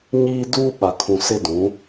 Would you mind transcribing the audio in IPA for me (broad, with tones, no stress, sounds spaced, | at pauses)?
ɲ iː˦ d uː˦ ɓ a˨ kʰ ũ˨ s ɪ˦ d ũ˨˦